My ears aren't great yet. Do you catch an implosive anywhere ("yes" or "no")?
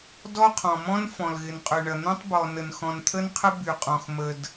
no